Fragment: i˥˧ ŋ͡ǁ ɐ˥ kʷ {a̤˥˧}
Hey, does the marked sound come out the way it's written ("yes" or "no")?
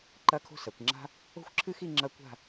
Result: yes